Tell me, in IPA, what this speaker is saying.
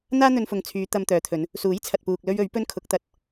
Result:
n̪aː˥n̪ɵ˧nfʊ˨ŋt͡sʰyː˨˧ t̪ɐ˧mt̪œː˨˧t̪ʰɵ˨˧n | suː˨˥jt͡sʰɐ˨t̚puː˨k̚lɵ˧ɥ ɵ˨˥ɥ pɵ˥nkʰʊ˨˥k̚t̪ɐ˨t̚

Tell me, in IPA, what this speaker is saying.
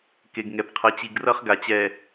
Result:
ke˨ɡŋɛ˨pqʰʌ˨˦ t͡ɕi˨ɡrʌ˦χ ɡa˨t͡ɕɛ˨

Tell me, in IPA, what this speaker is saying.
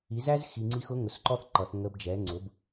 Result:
i˩˥zæ˥z xi˨ŋ͡ǀi˧˥xʊ˧˥ ŋʊ˨sǃɔ˥θ ǃʌ˨˩˦θ ŋə˧˥b d͡ʒɛ˩˥ŋ͡ǀʊ˩˥b

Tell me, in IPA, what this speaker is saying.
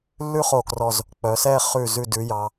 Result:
lːʉ˥χo˧˩krɔ˧˩z | k͡pœ˩˧sɛ˥˧ χʉ˧˩ zʉ˧˩dʉ˩˧jɑ˩˧

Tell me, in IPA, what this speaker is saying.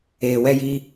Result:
eː˨wɛ˧jiː˧

